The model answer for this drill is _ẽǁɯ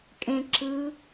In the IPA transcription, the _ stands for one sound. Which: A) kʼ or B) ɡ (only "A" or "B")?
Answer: A